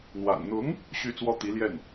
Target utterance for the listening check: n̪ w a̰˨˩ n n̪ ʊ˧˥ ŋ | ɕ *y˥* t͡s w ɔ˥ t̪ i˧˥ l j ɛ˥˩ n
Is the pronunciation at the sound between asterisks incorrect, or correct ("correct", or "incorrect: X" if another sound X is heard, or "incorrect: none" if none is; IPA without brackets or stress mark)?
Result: correct